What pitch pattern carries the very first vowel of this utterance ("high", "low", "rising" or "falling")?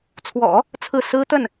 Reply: low